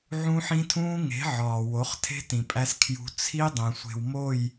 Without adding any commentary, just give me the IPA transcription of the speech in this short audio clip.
ʕ ũ˦ ħ ĩ˦ tʰ ũː˦ ŋ e̤˨˦ ʕ ɒː˨ w o˨˦ χ tʰ e̤˦ t ĩ˨ pʼ æ˦ s kʰ j ṳ˦ t͡sʰ i˦ dˤ ẽ˨ sʷ e̤˨ w m o˦˨ j

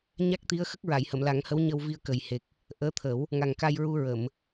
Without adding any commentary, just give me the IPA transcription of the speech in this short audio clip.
ɲ a˦˥ k̚ t̪ i˧˥ ə̯ x ə˦˥ k̚ ɹ a˨˩˨ j h ə˨˩˨ m l a˨˩˦ ŋ h ə˧˥ w ɲ ə˧ w v i˧ ə̯ k ə˨˩ j h e˨˩ k̚ | ʔ əː˧˥ t̪ʰ ə˨˩˦ w | ŋ a˨˩ ŋ k a˧ j ɹ u˧ ɹ ə˨˩˨ m

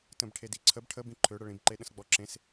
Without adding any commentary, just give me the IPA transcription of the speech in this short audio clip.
t ə̃ b ʈʰ e d i ǀʰ ə b ʈʰ ə b ĩ ǃʰ ø ɽ ə ɭ ĩ b ǃ e ɗ ə̃ s ɡ͡b ɔ ǁ ẽ s

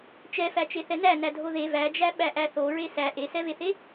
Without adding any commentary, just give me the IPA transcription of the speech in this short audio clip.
t͡ʃ ɛ f æ t͡ʃ e θ ɛ n æ n æ dʱ o ð e v æ d͡ʒ æ ɓ æ ʔ æ θ o ɹ e s æ ʔ e s ɛ v e θ e

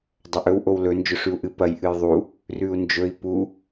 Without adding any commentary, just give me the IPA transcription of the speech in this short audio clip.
dˤ ɐ ʔ ɵ w ʔ o w l ɵ n d͡ʒ ɵ ʂ ʉ u̯ ʔ ɨ p ɐ j ʔ ɨ j ðˤ u | r ʉ u̯ n d͡ʒ ɵ i̯ p u

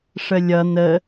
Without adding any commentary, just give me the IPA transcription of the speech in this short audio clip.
ʂ ə lʲ ʌ n ə

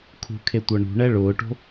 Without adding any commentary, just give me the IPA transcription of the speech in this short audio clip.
kʰ ṳ kʰ e tʷ ɤ ɳ ṳ ɳ ɛ ɭ ʊː ʈ o̤

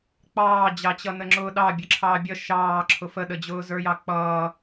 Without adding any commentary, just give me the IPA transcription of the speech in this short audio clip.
k͡p ɑː d͡ʑ ɑ t͡ɕ ʌ n ə ŋ͡ǁ ʊː ɗ ɑ bʲ ə ǁʰ ɑː bʲ ʌ ʃ ɑː ǁʰ ʊ f ə ɗ ə d͡ʑ ʊː z ə˞ j ɑ k͡p ʌː

